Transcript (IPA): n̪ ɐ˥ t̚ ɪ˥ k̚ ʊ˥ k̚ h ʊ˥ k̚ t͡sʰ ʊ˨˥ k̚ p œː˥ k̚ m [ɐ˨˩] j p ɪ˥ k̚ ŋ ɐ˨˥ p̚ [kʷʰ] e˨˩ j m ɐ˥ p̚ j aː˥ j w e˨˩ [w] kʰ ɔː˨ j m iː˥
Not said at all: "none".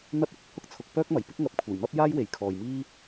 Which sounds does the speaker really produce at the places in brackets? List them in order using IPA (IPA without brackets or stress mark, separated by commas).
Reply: ɐ˨˩, kʷʰ, j